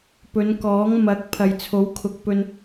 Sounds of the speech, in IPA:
p ɵ˨˧ n k ɔː˨˥ ŋ m ɐ˨˥ k̚ pʰ ɐ˨ j t͡sʰ o˨˥ w kʰ ʊ˨ k̚ p ɵ˧ n

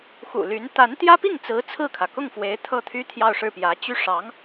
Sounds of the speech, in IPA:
x ṵ˨˩ l y˧˥ n t̪ a˧˥ n t̪ j ä˥ p i˥˩ ŋ t͡s ɹ̩˧˥ t͡sʰ ɹ̩˥˩ kʰ ä˩ k ʊ˥˩ ŋ f w e˧˥ ɪ̯ t̪ʰ ɤ˥˩ t̪ʰ y˥ t̪ʰ j ɑ˥˧ ʊ̯ ʂ ɻ̩˥˩ p j ä˧˥ t͡ɕ y˥˩ ʂ ɑ˧˥ ŋ

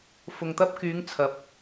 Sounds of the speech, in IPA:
f ʊ˨ ŋ t̪ ɐ˧ p̚ k yː˨˧ ŋ t͡sʰ ɐ˨˥ p̚

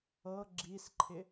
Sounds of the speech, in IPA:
ɤ ɡ͡ǁ i s ǃʰ ɪ

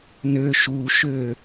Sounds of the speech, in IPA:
n ø ʃ u ʃ ø

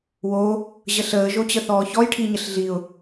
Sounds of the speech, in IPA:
w o | ʑ ə ɬ əː ʒ o t͡ɕ ə θ ɔː ç ɔ j ʈʰ i ɲ ə ɬ ɮ i ʊ̯

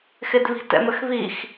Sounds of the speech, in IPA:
x ɪ d β i̤ t ɛ̰ m ə x β i x

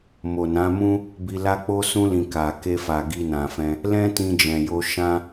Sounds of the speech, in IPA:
m o˨ n ã˨˦ m ũ˦ | b i˧ l a˦ k͡p o˦ s ũ˧ l ĩ˨ k a˨ k e˧ f a˨ ɡ i˧ n ã˨ f ɛ̃˧ | l ɛ̃˦ t ĩ˧ d͡ʒ ɛ̃˨ j o˧ ʃ ã˦

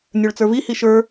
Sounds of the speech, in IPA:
nʲ ə˞ ɭ t͡s ə˞ v i h i ʃ ə˞

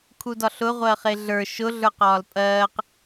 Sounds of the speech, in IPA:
kʰ u d ɒ ɬ ʊ ʁʷ ɜ χ e ɮ ə˞ ʃ ʊ ɮ ə˞ q ɒː l pʼ ɜː q

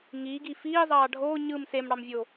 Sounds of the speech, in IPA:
ŋ iː ɡ i f iː zˤ ɑː ɖʱ oː ɲ ɯ m s e m ɽ ɑ m vʲ oː

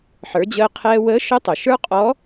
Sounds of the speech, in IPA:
ħ ə˞˩˧ d͡ʑ əː˧ qʰ ɛː˧ w əː˧˥ ʃ ʊ˧˥ tˤ ʊ˩ ʃ ə˞˥ qʼ ɔ˧˥

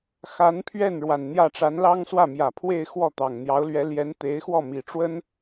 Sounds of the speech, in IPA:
x a˧˥ n pʰ ɥ ɛ˥˩ n ɻ w a˨˩ n n̪ j ä˥˩ ʈ͡ʂ a˧˥ n l ɑ˥ ŋ s w ä˥˩ m j ä˨˩ pʰ w e˥˧ ɪ̯ x w ɔ˥˩ t̪ ɑ˨˩ ŋ n̪ j ɑ˧˥ ʊ̯ l ɥ ɛ˧˥ l j ɛ˧˥ n t̪ e˧˥ ɪ̯ x w ɔ˥˩ m i˨˩ ʈ͡ʂ w ə˥ n

